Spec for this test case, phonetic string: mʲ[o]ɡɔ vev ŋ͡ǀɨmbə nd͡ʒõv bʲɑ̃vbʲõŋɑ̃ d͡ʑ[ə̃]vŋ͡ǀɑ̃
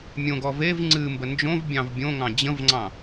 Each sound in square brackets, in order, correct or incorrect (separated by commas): incorrect, correct